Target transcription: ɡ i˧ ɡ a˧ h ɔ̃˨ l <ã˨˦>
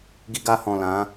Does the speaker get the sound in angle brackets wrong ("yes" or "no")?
no